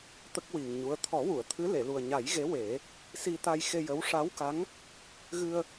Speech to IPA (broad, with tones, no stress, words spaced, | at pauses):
t̪ə˦˥k̚wi˨˩ŋɲu˧˥ə̯ t̪ʰɔ˨˩˦wu˨˩˨ə̯t̪ʰɨ˧˥ le˨˩˨lu˨˩ə̯ɲa˨˩˦jɣe˧˥ we˨˩˦ | si˧t̪a˧j xe˧jə˧˥w ʂa˧˥wka˧˥ŋ | ɣɨ˧ə̯